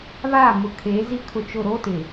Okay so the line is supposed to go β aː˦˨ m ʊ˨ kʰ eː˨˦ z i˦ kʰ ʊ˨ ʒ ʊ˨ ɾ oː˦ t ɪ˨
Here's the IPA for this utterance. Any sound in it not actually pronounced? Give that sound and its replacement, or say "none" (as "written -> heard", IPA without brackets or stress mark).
ʒ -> t͡ʃ